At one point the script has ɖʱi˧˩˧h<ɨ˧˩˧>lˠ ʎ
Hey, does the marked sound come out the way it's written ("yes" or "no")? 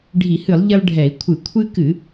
yes